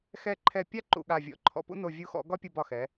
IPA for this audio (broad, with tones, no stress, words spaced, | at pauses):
xɛ˦˨ǃʰɛ˦˨pʲa˥ ǃṵ˦˨ɠa˦˨vʲɔ̰˦˨ ǃʰɔ̰˦˨pṵ˥no˦˨ vʲu˦˨xɔ̰˨˥ɡɒ˥pʲu˦˨b ɒ˦˨xɛ˨˥